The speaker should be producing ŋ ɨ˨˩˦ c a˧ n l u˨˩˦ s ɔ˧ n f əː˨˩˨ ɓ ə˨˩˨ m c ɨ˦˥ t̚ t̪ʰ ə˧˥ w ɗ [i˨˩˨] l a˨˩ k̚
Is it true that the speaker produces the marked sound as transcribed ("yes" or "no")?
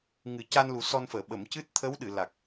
no